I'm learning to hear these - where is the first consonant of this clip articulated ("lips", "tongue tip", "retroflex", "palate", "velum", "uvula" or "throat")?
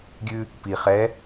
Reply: velum